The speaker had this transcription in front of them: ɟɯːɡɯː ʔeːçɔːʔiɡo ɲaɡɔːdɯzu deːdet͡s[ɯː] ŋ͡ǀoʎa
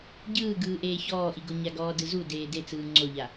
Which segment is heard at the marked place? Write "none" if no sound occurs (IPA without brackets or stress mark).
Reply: ɯː